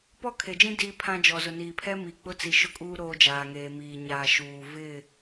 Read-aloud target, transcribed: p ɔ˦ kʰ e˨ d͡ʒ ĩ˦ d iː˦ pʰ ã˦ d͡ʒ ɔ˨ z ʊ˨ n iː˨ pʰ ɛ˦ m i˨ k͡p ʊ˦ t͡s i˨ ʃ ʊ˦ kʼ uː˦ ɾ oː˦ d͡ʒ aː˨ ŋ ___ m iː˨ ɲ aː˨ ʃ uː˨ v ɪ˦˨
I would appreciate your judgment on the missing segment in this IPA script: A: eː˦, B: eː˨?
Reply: B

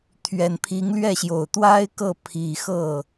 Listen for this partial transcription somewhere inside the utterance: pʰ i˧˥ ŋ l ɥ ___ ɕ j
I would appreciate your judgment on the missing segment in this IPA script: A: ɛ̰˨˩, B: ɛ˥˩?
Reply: B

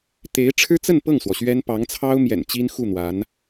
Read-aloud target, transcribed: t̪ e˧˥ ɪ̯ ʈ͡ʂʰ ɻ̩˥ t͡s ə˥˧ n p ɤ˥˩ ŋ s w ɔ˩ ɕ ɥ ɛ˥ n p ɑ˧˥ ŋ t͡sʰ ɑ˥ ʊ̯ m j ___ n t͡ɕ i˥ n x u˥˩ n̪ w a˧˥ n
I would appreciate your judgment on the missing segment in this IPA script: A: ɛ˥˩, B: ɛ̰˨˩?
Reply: B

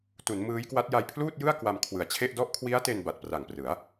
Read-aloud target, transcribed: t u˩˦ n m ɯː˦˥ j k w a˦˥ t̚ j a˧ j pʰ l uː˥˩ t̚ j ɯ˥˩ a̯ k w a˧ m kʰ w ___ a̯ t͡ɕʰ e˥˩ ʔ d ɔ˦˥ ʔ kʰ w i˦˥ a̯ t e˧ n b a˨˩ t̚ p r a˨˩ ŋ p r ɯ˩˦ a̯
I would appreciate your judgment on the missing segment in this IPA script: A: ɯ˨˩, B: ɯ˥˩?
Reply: A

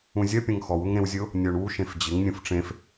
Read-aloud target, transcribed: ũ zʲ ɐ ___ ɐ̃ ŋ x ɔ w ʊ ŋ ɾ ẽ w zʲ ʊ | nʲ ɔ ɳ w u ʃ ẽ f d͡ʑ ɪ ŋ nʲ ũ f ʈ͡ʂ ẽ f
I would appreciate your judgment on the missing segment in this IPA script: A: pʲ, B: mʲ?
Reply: A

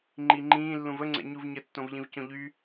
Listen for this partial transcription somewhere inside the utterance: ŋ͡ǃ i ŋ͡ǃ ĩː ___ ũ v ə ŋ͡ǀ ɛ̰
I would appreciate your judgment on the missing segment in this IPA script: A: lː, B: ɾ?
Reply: A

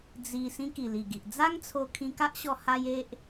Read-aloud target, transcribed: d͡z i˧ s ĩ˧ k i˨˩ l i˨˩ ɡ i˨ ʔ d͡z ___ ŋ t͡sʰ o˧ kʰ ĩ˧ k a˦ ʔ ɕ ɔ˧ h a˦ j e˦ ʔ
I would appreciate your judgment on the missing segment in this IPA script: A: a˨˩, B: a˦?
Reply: B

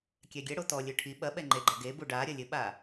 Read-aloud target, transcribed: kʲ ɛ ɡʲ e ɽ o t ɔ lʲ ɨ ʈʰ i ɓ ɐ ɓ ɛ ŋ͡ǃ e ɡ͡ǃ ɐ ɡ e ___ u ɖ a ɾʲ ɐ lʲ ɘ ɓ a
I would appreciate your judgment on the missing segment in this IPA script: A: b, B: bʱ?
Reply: A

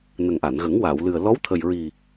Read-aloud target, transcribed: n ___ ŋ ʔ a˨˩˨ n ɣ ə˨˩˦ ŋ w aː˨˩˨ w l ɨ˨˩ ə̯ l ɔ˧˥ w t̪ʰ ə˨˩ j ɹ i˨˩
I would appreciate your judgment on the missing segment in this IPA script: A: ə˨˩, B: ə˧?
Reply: A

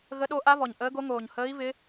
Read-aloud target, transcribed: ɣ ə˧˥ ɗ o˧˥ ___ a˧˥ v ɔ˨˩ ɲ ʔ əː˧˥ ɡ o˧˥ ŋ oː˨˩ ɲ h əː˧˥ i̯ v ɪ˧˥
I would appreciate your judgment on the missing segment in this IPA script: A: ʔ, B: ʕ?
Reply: A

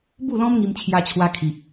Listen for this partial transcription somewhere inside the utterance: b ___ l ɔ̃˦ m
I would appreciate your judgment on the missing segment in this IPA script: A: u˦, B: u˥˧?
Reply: B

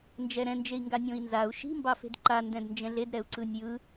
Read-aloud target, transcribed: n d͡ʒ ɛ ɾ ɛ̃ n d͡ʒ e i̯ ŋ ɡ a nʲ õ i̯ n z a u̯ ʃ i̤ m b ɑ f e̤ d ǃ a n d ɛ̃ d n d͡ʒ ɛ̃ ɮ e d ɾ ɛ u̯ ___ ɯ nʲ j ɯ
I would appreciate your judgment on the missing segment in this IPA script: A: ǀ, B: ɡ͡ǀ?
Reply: A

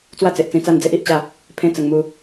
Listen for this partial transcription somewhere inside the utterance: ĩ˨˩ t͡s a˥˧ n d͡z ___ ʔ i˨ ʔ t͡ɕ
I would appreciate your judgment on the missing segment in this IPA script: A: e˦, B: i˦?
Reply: A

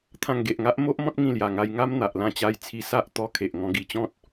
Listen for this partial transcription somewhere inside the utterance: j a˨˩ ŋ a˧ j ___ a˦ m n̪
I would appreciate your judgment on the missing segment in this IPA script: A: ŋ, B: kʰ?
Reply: A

